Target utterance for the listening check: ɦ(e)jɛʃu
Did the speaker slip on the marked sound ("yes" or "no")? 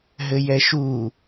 yes